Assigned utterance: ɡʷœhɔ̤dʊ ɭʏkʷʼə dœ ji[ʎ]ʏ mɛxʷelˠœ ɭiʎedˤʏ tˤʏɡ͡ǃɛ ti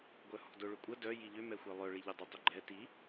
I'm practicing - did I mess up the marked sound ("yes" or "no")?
no